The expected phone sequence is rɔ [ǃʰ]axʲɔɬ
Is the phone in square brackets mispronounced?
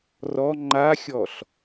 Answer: yes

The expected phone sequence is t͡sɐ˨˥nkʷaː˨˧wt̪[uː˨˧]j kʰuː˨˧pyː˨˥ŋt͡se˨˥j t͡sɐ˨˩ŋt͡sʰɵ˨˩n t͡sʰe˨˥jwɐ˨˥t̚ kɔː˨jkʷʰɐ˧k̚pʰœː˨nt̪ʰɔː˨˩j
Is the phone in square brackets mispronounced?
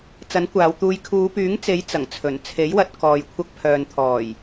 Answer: yes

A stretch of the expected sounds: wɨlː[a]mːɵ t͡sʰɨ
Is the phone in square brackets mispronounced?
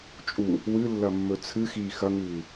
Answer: yes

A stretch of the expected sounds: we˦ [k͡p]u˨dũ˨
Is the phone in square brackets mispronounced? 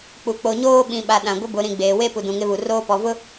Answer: yes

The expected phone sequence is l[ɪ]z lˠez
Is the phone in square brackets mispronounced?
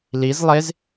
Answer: yes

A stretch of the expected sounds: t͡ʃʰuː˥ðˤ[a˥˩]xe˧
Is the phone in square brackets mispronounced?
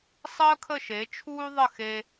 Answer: yes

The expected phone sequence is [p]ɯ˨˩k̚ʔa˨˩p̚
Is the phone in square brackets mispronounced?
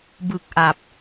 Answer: yes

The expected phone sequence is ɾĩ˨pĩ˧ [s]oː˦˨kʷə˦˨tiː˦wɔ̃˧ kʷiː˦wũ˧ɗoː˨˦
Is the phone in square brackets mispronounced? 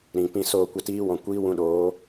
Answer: no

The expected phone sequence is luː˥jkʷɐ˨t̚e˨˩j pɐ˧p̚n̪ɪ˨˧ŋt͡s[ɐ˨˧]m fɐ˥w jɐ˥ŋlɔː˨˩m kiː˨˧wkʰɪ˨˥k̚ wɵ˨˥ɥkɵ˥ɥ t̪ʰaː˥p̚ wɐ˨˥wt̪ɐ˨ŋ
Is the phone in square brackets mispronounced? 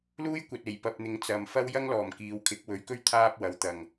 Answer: yes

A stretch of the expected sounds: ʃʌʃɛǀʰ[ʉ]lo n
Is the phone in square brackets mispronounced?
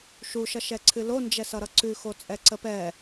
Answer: yes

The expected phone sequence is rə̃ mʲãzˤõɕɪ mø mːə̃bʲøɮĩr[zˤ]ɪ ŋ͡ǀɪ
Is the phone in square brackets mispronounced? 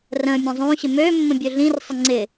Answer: yes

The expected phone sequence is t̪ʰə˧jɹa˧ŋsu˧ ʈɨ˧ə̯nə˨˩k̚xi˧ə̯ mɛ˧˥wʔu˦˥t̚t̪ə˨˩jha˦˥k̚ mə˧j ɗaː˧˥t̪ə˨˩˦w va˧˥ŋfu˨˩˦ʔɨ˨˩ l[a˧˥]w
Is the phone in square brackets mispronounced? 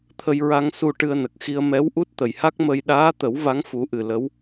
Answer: yes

